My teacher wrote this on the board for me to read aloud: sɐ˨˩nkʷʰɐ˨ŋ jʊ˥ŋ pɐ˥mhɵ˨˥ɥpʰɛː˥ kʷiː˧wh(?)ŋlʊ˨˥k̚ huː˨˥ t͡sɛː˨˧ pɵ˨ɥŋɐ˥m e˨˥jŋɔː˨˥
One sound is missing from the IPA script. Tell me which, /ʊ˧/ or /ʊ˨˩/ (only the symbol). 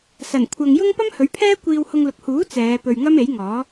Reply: ʊ˧